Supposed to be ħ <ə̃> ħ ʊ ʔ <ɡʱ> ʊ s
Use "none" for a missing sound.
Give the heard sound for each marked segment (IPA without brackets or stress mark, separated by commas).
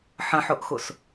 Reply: ə̃, x